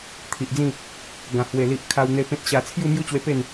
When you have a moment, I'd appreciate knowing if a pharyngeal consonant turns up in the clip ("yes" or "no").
no